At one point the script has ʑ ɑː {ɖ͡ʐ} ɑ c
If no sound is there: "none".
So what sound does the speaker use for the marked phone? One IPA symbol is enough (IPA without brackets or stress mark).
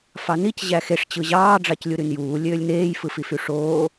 ɖ͡ʐ